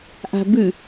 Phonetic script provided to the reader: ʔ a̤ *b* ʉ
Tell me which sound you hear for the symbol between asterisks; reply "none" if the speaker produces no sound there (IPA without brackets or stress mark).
b